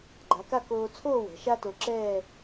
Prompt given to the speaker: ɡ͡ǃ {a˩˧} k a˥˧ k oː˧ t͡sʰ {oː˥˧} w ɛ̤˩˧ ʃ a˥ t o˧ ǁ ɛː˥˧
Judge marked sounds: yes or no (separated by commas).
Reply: yes, yes